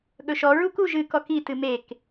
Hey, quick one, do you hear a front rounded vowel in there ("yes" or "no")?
no